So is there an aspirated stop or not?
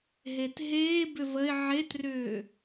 no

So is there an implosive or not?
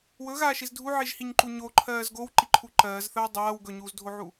no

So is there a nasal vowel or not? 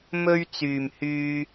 no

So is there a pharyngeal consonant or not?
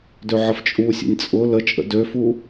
yes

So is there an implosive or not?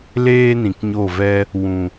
no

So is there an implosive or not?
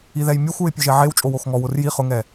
no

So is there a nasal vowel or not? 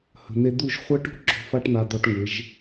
no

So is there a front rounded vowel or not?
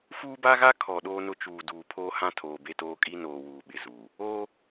no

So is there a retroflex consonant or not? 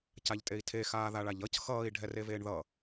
yes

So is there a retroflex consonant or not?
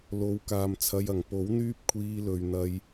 no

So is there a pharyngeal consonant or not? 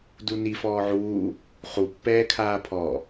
yes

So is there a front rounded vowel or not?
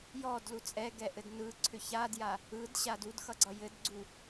yes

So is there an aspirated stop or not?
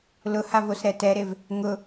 no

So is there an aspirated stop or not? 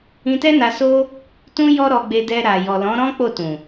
no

